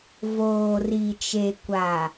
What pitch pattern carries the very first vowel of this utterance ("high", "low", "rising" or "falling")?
low